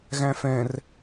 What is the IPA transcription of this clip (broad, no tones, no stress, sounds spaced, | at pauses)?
ɣ æ̃ f ɛ̃ r